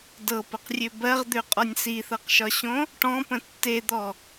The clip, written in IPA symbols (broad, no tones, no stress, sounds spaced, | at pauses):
d ɤ p ə q rʲ ø b ɜ ʁ d̪ ø qʼ ɒ nʲ s i θ ɤ q ʃ ɒ ɕ õ | ʈ ɔ̃ p ə̃ tː e d̪ ɔ